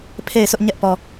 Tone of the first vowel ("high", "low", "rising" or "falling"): falling